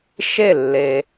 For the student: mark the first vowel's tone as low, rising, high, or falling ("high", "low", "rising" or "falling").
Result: falling